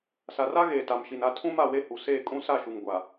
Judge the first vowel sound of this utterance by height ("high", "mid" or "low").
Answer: low